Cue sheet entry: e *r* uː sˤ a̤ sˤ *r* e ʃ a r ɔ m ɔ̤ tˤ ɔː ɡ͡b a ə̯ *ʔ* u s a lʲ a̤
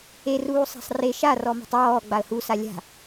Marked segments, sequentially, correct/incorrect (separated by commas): correct, correct, incorrect